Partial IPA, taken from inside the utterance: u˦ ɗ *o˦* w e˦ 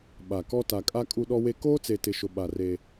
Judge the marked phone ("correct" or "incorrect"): incorrect